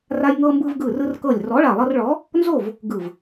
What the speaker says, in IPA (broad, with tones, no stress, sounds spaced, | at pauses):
r a˧ j ŋ ɤ˧ m b ɯ˧ v ɡ ɯ˧˩ r ɯ˧ r k ɤ˧˩ lʲ r ɔ˨˥ ɭ a˧˩ lˠ ɤ˧ r ɭ ɔ˨˥ | n z o˥˨ v | ɡ ɯ˧˩ v